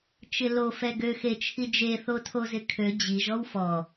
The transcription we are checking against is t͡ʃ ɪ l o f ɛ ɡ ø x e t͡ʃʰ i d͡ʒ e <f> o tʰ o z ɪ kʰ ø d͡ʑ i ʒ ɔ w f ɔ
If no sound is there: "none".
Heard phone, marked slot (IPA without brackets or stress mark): θ